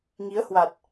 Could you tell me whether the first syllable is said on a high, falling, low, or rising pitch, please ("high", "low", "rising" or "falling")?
rising